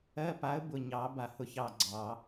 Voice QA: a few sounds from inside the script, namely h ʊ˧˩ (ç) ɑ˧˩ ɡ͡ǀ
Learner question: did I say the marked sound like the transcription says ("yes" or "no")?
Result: yes